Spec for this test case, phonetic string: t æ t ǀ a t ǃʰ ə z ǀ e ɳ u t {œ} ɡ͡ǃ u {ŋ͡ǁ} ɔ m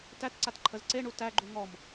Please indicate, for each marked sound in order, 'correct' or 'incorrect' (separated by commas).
incorrect, incorrect